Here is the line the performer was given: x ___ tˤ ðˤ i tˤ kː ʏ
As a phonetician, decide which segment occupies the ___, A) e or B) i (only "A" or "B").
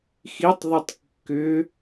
B